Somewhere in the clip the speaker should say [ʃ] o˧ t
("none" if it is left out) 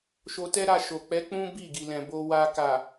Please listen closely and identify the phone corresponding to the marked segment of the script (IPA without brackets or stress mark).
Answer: ʃ